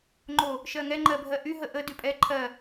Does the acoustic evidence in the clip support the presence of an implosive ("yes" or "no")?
no